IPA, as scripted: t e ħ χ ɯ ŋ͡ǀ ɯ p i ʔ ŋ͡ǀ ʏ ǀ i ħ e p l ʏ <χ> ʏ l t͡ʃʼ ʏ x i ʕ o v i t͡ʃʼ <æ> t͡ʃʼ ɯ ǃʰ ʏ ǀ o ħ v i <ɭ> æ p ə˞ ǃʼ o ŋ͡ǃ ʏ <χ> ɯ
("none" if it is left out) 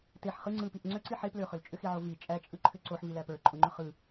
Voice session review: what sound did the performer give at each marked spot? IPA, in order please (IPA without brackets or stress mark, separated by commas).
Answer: χ, æ, l, χ